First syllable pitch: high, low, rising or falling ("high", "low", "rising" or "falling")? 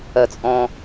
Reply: low